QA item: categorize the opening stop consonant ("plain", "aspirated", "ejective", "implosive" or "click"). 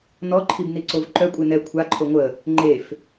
click